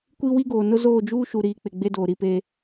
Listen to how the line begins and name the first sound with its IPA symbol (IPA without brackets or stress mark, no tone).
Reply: kʷ